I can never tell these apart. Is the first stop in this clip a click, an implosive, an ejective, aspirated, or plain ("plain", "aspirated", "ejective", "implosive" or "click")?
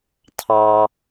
aspirated